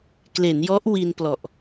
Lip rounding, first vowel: unrounded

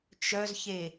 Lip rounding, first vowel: rounded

